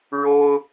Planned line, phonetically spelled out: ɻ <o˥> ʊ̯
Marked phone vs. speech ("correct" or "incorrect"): correct